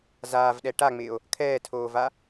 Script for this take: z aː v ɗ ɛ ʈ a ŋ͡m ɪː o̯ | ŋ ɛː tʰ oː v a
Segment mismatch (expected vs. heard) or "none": ŋ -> kʰ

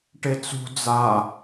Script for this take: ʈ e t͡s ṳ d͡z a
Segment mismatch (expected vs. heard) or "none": none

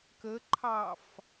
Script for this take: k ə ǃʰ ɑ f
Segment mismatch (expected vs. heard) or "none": none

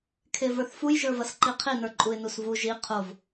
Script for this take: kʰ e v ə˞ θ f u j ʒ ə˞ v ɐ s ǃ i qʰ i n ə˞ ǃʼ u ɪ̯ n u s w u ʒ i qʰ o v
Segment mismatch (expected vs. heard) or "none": w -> v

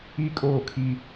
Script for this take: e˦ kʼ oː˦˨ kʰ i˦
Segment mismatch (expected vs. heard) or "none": e˦ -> i˦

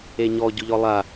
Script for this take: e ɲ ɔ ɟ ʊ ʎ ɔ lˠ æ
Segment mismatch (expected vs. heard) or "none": æ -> a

